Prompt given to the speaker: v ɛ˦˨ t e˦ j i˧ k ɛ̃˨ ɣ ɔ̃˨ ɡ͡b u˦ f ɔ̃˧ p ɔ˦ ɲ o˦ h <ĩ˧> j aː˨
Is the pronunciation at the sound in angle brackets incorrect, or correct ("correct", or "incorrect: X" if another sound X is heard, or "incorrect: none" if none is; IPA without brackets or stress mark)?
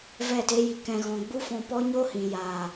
incorrect: ĩ˨